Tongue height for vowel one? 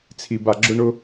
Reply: high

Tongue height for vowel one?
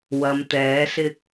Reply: low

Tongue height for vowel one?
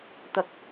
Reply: low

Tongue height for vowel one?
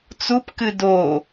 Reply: high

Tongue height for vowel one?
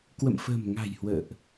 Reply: mid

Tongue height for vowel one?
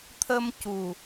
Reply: mid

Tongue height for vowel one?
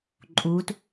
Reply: high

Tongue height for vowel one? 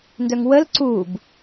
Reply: mid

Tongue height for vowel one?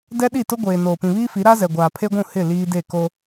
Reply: mid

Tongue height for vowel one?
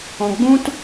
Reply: mid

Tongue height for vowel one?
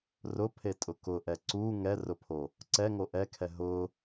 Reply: high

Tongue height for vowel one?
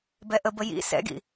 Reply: mid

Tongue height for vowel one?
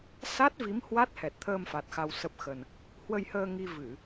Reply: low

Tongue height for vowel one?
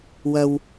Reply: low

